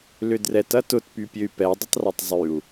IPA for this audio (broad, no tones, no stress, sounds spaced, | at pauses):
l ʏ d r ɛ t ɐ t ʊ t p y pʲ ø y̯ p ɛ dˤ ʏ tˤ r ɐ tˤ zˤ y u̯